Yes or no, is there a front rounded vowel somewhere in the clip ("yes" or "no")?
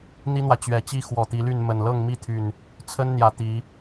yes